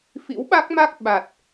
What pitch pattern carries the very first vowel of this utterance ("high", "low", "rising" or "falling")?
rising